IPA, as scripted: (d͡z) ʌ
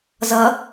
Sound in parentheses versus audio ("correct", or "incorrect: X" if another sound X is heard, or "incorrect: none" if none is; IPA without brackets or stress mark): incorrect: z